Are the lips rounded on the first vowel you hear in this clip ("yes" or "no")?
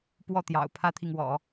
yes